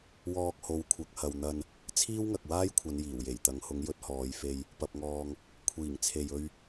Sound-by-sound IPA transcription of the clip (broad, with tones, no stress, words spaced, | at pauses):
wɔː˧k̚ho˨˥wkʷʰɐ˨˥k̚hɐ˨w n̪ɐ˧n | t͡sʰiː˥wŋɐ˨k̚ waː˥jkʷʰɐ˨˧n jiː˨˩wje˨˩jt̪ɐ˨˧ŋ hʊ˨˥ŋjɵ˨˥t̚hɔː˨˧jfe˧j | pɐ˨p̚ŋɔː˨ŋ | kʷʰiː˨˩ŋt͡sʰe˨jɵ˧ɥ